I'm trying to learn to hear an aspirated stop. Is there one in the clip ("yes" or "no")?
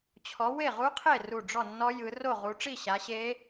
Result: yes